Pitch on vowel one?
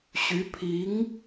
rising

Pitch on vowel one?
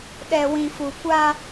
low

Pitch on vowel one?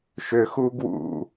low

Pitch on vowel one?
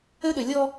high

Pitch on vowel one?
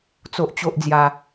high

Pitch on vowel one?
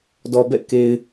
low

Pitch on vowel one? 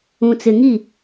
low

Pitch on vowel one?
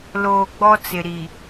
low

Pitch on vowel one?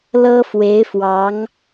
high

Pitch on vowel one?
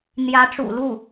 rising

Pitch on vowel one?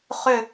falling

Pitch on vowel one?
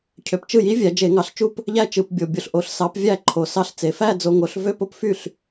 low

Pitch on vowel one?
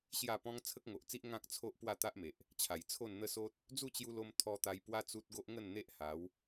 falling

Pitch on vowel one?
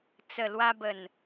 low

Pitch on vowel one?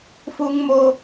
high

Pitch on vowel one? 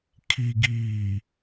low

